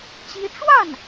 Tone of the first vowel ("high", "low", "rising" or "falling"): high